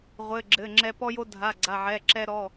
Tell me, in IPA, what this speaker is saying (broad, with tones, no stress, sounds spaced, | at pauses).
ʁʷ ɘ˩˧˩ ɡ͡ǁ ɘ˩˧˩ ŋ͡ǁ ɛ˧ p ɔ˧ j o˧ dʱ a˩˧˩ ɡ͡ǀ a˩˧˩ ʕ ɛ˩˧˩ ǁ ɛ˧ ɾ ɔ˩˧˩